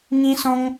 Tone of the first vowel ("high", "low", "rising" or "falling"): high